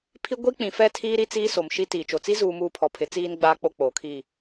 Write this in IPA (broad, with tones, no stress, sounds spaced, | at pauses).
pʰ i˦ ɡʷ i˦ k͡p ĩ˨ f ɛ˦˨ tʰ iː˦ ɾ i˦ t͡s iː˦ s o˨ m ʃ i˦ t iː˨ t͡ʃ o˨ t͡s i˦ z uː˨ m uː˨ pʰ ɔ˨ pʰ ɪ˨˦ t͡s iː˦ n ɡ͡b aː˦ k͡p o˦ k͡p oː˨ kʰ iː˦˨